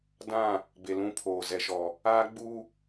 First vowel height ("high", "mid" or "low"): low